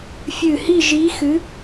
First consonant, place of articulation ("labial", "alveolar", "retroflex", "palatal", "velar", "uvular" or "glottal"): labial